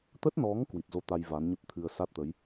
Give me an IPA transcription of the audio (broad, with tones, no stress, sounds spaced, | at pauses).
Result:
t̪ ə˦˥ t̚ n ɔ˨˦ ŋ k w i˨˩ t̚ z o˧ t̪ a˧ j v a˨˦ n ɲ ə˦˥ p̚ t̪ʰ ɨ˧ ə̯ s a˦˥ t̚ t̪ ə˨˦ j